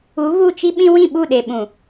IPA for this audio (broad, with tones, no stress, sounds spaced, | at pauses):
u˨˦ β u˦˨ t͡ʃ i˦ ɓ ĩ˦ w ĩ˦˨ ɓ u˦˨ ɗ e˨ ɓ ũ˨